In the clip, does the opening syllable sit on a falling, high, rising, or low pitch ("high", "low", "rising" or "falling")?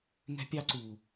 high